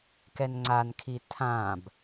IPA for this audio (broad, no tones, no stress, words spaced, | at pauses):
kɛnŋ͡ǀankʰi tʰãb